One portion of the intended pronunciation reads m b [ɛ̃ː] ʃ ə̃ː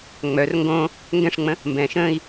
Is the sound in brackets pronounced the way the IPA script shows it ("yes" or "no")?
yes